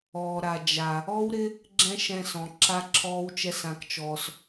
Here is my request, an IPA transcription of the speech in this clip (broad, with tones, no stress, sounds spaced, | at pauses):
ɔː˨ ɾ a˨ d͡ʒ a˨ | ɔ˦ w ɾ ɪ˦ | ɡ͡ǁ ɛ̃˦ ʃ ɛ̃˧ s ɔ̃˨ ǁ a˦ ǁʰ ɔː˦ w t͡ʃ ɛ˦ s ã˧ k t͡ʃ ɔː˧ s